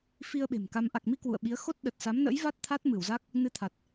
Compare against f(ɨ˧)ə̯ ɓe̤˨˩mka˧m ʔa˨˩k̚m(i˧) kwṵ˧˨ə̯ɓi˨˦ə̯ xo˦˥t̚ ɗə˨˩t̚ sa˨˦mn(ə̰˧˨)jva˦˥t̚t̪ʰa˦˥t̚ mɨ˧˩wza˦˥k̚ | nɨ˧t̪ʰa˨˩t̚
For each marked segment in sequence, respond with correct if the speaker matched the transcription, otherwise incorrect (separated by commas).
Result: incorrect, correct, incorrect